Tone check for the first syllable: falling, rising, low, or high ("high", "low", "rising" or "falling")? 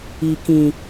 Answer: low